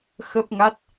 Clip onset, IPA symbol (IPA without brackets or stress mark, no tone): x